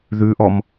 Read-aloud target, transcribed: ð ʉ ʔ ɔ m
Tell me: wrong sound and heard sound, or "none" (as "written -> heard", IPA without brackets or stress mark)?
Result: none